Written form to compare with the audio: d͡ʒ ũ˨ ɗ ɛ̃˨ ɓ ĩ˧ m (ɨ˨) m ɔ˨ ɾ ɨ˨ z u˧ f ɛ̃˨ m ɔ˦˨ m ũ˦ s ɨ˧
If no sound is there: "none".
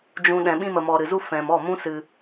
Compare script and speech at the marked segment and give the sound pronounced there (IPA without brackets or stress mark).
ə˨